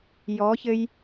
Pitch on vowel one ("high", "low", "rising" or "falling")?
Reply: rising